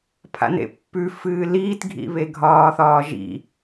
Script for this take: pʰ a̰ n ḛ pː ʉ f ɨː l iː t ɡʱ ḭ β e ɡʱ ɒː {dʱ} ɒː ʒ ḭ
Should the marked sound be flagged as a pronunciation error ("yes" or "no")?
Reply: yes